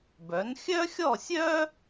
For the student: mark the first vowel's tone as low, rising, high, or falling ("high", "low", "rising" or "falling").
rising